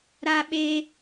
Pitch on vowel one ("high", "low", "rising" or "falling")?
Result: high